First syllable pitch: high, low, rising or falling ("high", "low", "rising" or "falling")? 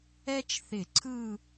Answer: high